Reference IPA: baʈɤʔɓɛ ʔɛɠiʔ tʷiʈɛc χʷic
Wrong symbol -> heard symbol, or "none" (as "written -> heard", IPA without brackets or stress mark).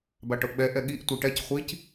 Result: none